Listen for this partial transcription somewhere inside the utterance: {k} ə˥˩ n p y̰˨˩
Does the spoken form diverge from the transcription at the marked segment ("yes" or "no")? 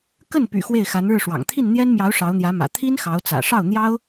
no